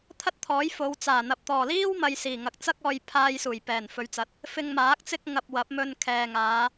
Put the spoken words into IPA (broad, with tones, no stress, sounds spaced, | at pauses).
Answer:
t̪ʰ ɐ˥ t̚ t̪ʰ ɔː˨˥ j f o˨˧ w t͡s aː˨˩ n̪ ɐ˨ p̚ t̪ ɔː˨˩ l iː˥ w m ɐ˨ j s iː˨˩ ŋ ɐ˨ k̚ t͡s ɐ˥ k̚ ɔː˧ j pʰ aː˧ j s uː˨˩ j p ɛː˨˩ n f ɵ˨˧ ɥ t͡s ɐ˨˥ t̚ | f ɪ˧ ŋ m aː˨˥ k̚ t͡s ɪ˥ k̚ ŋ ɐ˧ p̚ w ɐ˨˥ p̚ m ɵ˧ n kʰ ɛː˨ ŋ aː˨˧